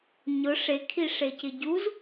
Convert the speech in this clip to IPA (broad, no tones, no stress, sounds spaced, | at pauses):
ɲ ʊ ʂ e kʰ i ʂ e c ɪ ɟ u z